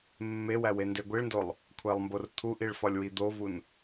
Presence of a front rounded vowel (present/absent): absent